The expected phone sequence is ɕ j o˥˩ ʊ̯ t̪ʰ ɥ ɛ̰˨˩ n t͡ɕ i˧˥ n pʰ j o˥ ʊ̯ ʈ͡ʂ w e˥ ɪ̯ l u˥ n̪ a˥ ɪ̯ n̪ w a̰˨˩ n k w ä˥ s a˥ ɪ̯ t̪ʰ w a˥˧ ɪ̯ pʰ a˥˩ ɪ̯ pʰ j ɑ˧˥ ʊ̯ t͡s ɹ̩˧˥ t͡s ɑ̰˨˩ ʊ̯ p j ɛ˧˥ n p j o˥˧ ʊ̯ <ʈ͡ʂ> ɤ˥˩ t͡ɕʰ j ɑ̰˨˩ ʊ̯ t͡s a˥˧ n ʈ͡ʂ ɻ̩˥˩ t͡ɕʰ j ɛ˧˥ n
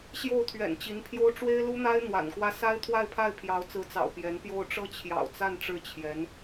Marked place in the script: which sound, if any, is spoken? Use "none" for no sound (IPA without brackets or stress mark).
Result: ʈ͡ʂ